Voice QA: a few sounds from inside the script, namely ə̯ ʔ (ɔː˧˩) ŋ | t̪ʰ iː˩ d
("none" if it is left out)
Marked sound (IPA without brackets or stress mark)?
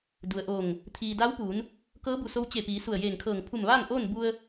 oː˧˩